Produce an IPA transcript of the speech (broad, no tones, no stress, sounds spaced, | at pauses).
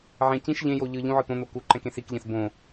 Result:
ʕ ɛ̃ c ĩ ʃ ʎ ẽ j o ʎ ɯ ʎ ũ ʕ ɯ t̪ õ n̪ o k u ǃ ɛ̃ k ẽ s i k ʎ ɛ̃ s b õ